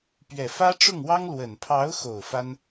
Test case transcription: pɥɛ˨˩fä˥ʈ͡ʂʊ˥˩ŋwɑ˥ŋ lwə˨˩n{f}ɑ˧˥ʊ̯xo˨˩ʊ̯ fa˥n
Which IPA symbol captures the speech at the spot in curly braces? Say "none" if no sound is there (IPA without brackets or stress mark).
pʰ